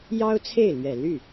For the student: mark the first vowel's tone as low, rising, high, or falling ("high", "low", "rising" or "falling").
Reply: high